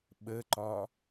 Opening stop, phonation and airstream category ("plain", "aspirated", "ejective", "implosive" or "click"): implosive